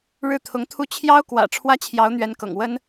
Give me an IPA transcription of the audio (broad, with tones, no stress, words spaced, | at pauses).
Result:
ɻɻ̩˥˩t̪ʰʊ˧˥ŋt̪ʰu˥ t͡ɕʰjɑ˥ʊ̯kwä̰˨˩ ʈ͡ʂʰwä˥t͡ɕʰjɑ˧˥ʊ̯n̪ɥɛ˧˥nkɤ̰˨˩ŋ wə˥n